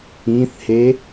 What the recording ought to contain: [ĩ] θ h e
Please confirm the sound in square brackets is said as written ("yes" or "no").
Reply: yes